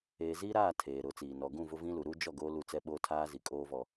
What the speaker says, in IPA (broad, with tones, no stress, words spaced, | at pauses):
eː˨ziː˦ɾaː˦˨ tʰeː˨ɾʊ˨˦t͡siː˨ nɔ˨ɡũ˦˨ vʊ˦vĩ˦lu˨ ɾu˦d͡ʒɔ˦˨ ɡoː˦lu˦˨t͡sɛ˦ɓoː˦ tʰaː˦zi˨kʼoː˦ vɔ˦